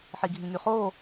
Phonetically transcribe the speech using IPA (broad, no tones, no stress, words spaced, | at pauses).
ħiɡʱĩŋyχoː